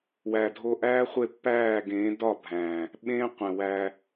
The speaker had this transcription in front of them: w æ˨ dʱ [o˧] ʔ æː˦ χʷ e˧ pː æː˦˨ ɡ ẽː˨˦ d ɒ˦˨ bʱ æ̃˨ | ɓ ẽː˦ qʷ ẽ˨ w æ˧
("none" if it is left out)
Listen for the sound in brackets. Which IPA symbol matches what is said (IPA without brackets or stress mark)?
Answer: o˧